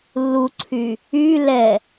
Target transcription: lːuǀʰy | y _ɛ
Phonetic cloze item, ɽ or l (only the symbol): l